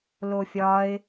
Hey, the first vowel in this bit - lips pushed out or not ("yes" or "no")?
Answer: yes